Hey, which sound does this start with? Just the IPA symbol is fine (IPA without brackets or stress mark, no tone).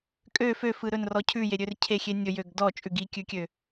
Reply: kʼ